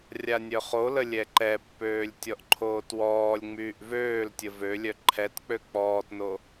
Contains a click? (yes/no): yes